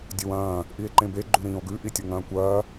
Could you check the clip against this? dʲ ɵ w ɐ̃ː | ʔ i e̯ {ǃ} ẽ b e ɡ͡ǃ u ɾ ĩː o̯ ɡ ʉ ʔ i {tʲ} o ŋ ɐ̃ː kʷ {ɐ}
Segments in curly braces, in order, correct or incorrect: correct, correct, incorrect: ɐː

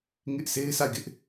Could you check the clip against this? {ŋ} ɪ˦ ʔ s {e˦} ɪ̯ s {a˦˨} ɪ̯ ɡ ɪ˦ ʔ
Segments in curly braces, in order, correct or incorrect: correct, correct, correct

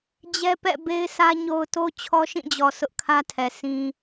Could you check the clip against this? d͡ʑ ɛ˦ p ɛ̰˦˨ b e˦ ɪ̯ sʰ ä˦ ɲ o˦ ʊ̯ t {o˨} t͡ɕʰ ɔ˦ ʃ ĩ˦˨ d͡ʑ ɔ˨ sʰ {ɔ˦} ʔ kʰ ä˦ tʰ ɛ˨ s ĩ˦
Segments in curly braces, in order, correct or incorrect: incorrect: o˦, incorrect: ʊ˦

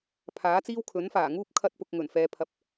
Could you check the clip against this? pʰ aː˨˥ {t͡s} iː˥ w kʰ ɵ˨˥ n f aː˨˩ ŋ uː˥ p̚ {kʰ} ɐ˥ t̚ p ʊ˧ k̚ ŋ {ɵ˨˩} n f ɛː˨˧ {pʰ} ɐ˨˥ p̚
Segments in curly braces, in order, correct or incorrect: correct, correct, correct, correct

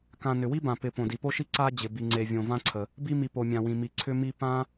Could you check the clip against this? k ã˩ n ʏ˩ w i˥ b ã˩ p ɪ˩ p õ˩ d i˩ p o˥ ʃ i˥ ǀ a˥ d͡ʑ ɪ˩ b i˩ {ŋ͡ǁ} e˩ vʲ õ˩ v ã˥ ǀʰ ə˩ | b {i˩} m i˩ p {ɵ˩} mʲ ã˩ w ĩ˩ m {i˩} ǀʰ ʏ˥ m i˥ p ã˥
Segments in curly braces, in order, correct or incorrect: incorrect: ŋ͡ǀ, incorrect: i˥, incorrect: o˩, correct

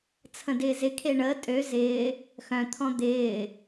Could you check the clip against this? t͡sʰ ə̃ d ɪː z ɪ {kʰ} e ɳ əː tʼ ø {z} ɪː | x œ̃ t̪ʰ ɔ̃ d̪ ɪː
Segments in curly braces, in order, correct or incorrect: correct, correct

